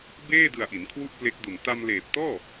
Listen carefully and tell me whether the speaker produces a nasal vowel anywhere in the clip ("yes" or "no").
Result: no